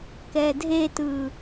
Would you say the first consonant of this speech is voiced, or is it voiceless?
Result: voiceless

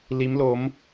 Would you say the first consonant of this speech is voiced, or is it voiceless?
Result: voiced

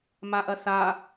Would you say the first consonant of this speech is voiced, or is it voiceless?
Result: voiced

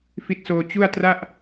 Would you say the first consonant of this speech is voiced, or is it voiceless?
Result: voiceless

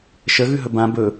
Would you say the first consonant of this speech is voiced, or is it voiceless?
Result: voiceless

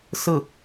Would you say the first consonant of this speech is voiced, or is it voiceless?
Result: voiceless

